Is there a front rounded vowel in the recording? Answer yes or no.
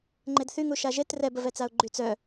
yes